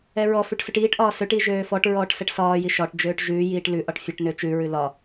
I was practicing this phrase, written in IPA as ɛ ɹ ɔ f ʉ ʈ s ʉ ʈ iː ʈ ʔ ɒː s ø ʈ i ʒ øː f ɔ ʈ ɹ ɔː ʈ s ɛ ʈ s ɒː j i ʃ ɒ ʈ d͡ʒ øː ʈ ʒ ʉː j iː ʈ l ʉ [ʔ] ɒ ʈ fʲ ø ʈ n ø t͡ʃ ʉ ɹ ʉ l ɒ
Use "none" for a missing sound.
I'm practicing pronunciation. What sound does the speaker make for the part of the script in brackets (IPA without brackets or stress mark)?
ʔ